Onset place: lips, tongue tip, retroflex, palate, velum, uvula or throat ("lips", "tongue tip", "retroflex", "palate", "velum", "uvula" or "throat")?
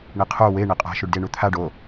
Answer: retroflex